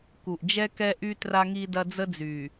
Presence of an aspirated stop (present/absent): absent